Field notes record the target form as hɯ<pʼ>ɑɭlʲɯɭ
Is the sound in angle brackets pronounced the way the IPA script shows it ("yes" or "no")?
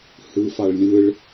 no